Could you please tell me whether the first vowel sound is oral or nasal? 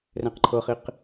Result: nasal